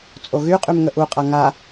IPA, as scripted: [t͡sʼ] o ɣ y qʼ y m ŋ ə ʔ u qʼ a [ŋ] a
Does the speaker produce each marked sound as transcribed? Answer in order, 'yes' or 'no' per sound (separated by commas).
yes, yes